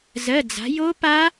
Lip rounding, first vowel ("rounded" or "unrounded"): unrounded